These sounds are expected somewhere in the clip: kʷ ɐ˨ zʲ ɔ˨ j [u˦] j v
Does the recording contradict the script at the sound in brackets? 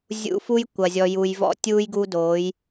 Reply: yes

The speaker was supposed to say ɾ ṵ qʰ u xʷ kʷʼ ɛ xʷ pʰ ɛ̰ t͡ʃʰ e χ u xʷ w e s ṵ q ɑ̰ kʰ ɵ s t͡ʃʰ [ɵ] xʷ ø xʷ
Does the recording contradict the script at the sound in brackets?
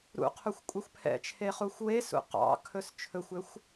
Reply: no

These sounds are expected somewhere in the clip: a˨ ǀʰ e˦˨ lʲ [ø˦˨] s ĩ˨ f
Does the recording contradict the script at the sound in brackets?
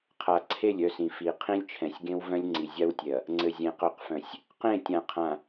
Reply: yes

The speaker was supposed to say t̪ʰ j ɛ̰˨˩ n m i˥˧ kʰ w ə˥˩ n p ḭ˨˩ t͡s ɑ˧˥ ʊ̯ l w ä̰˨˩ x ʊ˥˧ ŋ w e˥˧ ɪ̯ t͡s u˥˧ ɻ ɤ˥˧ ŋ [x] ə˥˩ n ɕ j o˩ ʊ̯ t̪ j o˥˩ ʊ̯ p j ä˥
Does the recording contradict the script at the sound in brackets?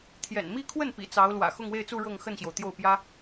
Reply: no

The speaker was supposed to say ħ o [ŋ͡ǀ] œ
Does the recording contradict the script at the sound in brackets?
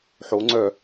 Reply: no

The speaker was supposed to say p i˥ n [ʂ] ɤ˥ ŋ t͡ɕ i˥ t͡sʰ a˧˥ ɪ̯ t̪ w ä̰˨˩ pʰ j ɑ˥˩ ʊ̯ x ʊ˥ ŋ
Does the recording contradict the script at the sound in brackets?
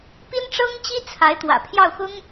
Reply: yes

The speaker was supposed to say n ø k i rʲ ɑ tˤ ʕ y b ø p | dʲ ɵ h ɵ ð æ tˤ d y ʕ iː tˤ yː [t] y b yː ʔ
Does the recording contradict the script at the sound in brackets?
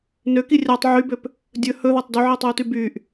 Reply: no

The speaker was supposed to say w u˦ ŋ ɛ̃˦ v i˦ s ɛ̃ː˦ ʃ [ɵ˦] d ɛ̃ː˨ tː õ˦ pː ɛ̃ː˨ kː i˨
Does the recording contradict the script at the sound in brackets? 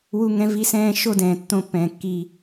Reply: yes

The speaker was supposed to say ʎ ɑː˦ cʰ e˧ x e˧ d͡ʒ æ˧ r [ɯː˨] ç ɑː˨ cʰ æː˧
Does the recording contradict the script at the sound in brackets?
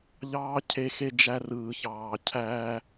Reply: no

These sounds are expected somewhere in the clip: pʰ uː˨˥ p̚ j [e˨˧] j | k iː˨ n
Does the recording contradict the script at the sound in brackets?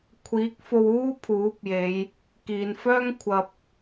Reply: no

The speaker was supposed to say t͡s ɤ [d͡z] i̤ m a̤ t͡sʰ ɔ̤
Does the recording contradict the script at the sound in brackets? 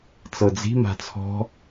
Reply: no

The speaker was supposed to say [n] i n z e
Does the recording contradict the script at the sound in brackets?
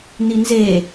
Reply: no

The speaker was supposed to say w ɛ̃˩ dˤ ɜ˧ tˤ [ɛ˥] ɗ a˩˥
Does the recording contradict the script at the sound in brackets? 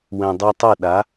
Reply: yes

